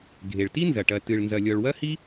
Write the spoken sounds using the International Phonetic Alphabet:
ɡʱe˩ɭti˥nzɐ˩ ʈɐ˩tɨ˩ɭnzɐ˩ lʲɔ˩ɭwɐ˥hi˥

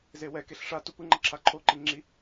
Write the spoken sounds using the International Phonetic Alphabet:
zewɛkeɬ ʂa tupɯŋ͡ǃʌ ǁʰaǃʰoǃi ŋ͡ǁi

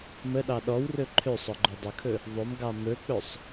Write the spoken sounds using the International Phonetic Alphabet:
məɗɑ ɗɔwrɵ ǃʰøsˤ ɔɡ͡ǃɵdˤəkʰɵ | ðˤɵmɡɑ mɵk͡pɵsˤ

